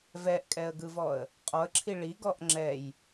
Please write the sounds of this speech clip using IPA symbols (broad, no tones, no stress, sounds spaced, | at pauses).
v ɛ ʔ kʼ ɛ ə̯ ɡ ɯ v ɔ ə̯ | qʼ ɔ ə̯ ǁʰ i ɭ i ɡ ɔ ʔ ŋ͡ǁ ɛ j